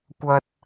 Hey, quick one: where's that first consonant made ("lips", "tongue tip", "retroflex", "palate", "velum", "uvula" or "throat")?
velum